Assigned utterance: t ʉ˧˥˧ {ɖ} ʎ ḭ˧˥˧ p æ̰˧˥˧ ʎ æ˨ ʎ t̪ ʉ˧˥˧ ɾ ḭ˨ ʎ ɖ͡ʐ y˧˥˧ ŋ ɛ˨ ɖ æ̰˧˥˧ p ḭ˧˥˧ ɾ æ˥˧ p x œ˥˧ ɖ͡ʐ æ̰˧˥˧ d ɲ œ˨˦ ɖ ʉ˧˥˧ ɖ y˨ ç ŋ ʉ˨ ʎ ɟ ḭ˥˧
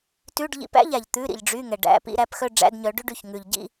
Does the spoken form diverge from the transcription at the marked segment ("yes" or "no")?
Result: no